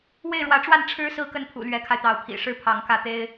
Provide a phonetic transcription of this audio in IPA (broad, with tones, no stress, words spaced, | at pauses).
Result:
we˥˩ɪ̯ɻwä˧˥ʈ͡ʂwa˥˩n ʈ͡ʂʰɻ̩˧˥ sɹ̩˥˧kə˥˩npʰṵ˨˩ lɥɛ˧˥kʰa˧ɪ̯t̪ɑ˧˥ʊ̯ pʰḭ˨˩ʂɻ̩˥˩ pʰɑ˧˥ŋkä˥˩t̪e˥ɪ̯